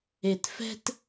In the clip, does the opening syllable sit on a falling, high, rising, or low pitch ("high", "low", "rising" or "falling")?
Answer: low